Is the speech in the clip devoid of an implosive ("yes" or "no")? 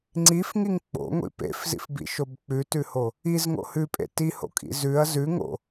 yes